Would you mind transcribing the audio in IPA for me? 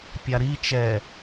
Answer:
pʲ a ɾ i t͡ʃ ɛ

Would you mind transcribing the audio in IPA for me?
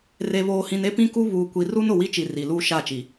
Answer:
r e˨ β oː˨ h ĩ˨ n e˦ p ĩ˦ k u˦ β uː˨ kʷ i˨ r u˦ n ʊ˨ w i˦ t͡ʃ i˨ r i˨ l uː˦ ʃ a˦˨ t͡ʃ i˨

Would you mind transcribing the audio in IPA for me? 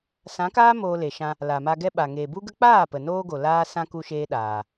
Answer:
s ã˨˦ k aː˦ m oː˧ l e˨ ʃ ã˧ | l a˨ m a˧ ɡ ɛ˦ ɓ a˨ ŋ eː˨ b u˦ ɡ ə˦ k͡p aː˦˨ p ə˨ n oː˧ ɡ o˨ l aː˦ s ã˦ k u˦ ʃ eː˦ ɗ aː˨

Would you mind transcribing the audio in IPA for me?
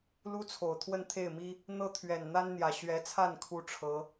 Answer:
l u˥ t͡sʰ o˨˩ ʊ̯ t̪ʰ w ə˥˧ n t̪ʰ e˥˩ ɪ̯ m i˥ | n̪ ɤ˥ t̪ʰ ɥ ɛ˨˩ n n̪ a˥ n n̪ j ä˨˩ ɕ ɥ ɛ˧˥ t͡sʰ a˥˩ n kʰ u˥ ʈ͡ʂʰ ɤ˧˥

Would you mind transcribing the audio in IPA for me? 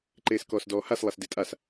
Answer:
ǃ eː s k ɔː s d ɔː h a s lˠ a s d e tʼ a s

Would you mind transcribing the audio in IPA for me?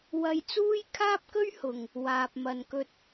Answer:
w ɐ˧ j t͡s uː˥ j kʰ aː˥ p̚ k ɵ˥ ɥ h ʊ˨ ŋ | w aː˨ p̚ m ɐ˨ n k ɵ˧ t̚

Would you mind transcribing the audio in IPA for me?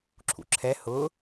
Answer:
ǁʰ ṵ ǁʰ ɛ h ʊ

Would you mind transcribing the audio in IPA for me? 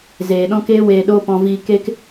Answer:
z eː˨ ɗ ɔ̃˦ k eː˦ w eː˧ ɗ oː˦ p ɔ̃˧ v iː˧ k e˦ k

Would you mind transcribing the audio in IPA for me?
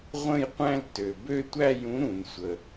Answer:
ʁʷ ə̃˥˧ j qʷ æ̃˥˧ l t ø˩ b ø˥˧ tʷ æ˥˧ j ũ˨˥ ɾ ũ˩ n sʷ ə˩

